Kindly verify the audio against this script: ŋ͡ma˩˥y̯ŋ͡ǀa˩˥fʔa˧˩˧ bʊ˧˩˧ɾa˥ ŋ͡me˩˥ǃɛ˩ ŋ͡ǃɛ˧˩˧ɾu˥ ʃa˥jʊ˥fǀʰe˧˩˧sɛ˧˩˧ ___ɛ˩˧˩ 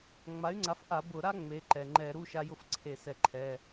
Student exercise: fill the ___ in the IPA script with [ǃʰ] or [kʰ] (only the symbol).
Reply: ǃʰ